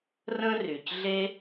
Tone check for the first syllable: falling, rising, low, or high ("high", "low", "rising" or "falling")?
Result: high